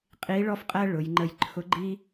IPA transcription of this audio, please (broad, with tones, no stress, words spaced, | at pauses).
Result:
qʼi˧˥ɭɔ˥fqʼæ˥ ɭʊ˩˧jŋ͡ǃə˧j ǃʰʊ˧˥ɡ͡ǃi˥